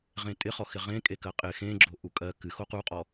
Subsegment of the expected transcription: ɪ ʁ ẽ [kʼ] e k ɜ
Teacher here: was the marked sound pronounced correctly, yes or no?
yes